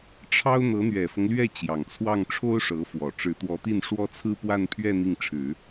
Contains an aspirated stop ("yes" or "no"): yes